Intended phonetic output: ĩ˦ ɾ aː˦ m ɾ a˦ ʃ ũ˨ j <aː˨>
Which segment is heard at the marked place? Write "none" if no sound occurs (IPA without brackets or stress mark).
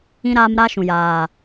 aː˨